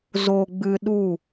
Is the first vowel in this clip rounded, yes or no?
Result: yes